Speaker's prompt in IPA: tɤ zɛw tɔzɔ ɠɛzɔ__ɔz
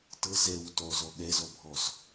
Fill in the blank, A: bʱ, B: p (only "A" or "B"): A